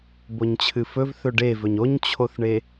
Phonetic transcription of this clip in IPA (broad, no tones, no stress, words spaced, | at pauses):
boɲt͡ɕʰɨfɵvθɵ ɖevɵɲ oɲt͡ɕʰoθɳe